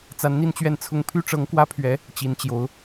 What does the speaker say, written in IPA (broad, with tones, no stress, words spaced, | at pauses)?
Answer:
t͡sa˧˥nn̪i˥˧nt͡ɕɥɛ˥˩nt͡sʰʊ˥ŋ pʰy˥ʈ͡ʂɤ˧˥ŋkwä˥pʰɥɛ˧˥ | t͡ɕi˧˥nt͡ɕjo˧˥ʊ̯